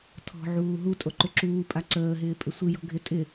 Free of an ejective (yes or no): no